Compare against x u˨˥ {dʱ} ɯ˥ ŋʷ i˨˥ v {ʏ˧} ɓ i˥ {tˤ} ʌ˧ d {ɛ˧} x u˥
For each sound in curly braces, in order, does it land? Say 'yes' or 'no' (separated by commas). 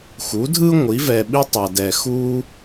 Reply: yes, no, yes, yes